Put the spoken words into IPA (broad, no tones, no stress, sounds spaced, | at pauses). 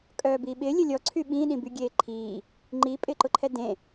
kʼ œː b iː ɓ ɪː lʲ ə lʲ ɔ ǀʰ y ɓ ĩ ɗ ĩ b y ɡʲ eː ǃʰ iː | ŋ͡ǃ iː pʼ ɪː ǃ ʊ ǃʰ ɛ d ẽ